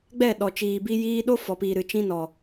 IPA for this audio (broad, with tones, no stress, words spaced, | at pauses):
ɡ͡bɛ˦˨ɗɔ˨t͡ʃiː˨ bi˧jiː˧ ɗo˦fɔ˨piː˨ɾɨ˨ t͡ʃĩ˧nɔ˨